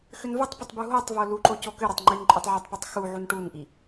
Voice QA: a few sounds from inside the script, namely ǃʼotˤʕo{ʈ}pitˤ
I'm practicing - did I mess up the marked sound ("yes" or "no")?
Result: yes